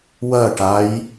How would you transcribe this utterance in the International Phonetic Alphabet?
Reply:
w ɐ ʈ a j

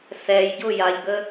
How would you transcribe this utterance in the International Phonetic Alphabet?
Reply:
s ɛ j ɟ ʊ j a ʎ ɡ ə

